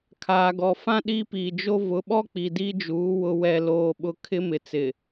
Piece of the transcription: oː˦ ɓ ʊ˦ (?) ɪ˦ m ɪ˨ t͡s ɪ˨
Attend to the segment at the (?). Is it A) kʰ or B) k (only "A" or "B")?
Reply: A